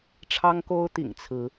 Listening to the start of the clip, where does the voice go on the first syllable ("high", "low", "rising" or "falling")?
high